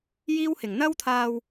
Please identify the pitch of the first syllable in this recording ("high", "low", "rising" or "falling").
high